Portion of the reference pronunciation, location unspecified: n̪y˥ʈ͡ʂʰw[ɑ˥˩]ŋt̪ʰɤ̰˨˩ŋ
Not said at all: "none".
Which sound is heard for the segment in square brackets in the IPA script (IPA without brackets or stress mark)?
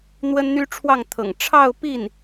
ɑ˥˩